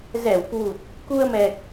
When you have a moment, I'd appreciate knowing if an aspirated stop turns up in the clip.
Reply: no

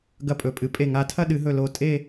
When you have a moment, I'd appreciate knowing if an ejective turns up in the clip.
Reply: yes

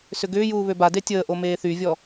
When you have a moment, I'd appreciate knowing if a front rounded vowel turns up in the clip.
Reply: yes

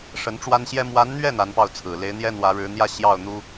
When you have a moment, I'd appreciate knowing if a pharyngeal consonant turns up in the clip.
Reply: no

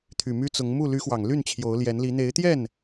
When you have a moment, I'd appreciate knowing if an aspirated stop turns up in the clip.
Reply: yes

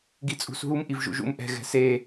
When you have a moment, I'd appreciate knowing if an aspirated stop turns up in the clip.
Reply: no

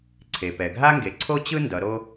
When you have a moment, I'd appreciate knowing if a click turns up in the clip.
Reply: yes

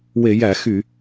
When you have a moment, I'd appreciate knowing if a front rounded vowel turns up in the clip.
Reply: yes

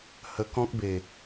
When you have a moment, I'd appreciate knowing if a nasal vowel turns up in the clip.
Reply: yes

